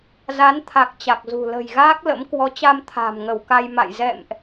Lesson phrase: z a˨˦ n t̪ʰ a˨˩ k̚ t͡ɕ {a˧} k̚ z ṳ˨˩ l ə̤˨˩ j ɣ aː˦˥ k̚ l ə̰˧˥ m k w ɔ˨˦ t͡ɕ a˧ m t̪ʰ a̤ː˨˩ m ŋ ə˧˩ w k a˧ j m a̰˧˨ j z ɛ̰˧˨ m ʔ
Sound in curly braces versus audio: incorrect: a˨˩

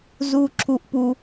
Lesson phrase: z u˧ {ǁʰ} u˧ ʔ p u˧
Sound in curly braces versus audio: correct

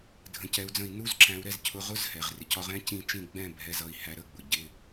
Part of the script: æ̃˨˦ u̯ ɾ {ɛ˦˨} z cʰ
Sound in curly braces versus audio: correct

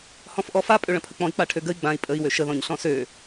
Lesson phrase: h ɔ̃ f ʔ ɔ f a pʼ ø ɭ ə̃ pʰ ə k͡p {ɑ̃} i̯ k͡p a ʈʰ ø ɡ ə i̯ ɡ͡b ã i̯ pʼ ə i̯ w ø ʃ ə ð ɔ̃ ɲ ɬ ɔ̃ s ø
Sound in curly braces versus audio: incorrect: ɔ̃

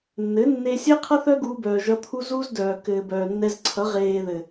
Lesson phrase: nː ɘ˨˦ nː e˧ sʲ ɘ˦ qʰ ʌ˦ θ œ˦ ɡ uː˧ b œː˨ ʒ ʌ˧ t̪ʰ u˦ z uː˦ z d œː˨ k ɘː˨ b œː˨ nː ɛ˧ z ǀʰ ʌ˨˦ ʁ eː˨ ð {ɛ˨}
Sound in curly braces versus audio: incorrect: ɘ˨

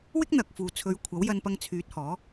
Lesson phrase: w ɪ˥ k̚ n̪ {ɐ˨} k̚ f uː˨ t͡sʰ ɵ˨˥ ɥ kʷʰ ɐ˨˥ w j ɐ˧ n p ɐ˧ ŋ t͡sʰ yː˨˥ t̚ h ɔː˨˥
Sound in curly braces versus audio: correct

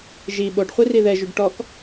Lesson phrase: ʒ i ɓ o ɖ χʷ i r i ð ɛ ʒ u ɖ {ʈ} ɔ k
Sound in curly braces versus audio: correct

